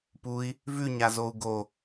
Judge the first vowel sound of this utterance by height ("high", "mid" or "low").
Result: high